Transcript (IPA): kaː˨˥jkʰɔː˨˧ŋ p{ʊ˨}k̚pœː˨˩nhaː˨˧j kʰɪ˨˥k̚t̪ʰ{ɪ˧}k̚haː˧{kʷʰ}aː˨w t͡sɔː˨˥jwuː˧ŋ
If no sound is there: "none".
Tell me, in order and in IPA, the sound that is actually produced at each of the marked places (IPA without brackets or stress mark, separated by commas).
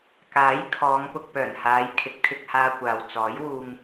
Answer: ʊ˨, ɪ˧, kʷ